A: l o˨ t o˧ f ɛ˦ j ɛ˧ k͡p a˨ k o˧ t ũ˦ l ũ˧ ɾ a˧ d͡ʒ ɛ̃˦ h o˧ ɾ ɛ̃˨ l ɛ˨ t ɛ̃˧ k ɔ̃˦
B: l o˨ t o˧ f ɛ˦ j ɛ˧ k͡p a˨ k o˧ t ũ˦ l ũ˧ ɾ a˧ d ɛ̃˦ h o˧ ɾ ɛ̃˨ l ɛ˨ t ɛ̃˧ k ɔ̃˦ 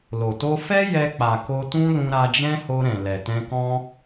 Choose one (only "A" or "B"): A